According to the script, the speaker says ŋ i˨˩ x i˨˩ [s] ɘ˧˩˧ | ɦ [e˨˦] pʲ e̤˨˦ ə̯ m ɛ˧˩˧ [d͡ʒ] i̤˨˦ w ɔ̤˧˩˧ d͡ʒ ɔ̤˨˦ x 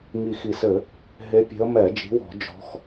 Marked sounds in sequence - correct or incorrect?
correct, correct, correct

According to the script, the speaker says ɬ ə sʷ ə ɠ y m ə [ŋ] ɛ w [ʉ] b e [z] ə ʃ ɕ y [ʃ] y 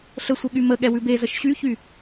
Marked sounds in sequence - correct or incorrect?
incorrect: ɠ, correct, correct, incorrect: ç

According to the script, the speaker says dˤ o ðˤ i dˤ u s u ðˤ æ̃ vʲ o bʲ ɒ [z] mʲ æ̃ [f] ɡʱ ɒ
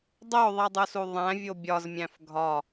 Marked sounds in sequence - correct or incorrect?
correct, correct

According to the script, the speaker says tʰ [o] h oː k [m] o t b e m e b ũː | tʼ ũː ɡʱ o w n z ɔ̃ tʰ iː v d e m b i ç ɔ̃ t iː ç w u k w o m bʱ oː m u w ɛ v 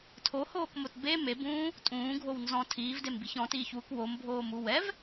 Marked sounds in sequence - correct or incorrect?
correct, correct

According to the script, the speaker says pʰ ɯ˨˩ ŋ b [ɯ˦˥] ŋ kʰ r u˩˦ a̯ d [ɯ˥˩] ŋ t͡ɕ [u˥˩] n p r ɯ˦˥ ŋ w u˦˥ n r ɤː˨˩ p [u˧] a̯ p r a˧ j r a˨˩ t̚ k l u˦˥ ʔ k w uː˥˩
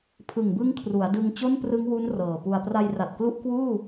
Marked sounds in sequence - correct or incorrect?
correct, incorrect: ɯ˧, incorrect: o˥˩, correct

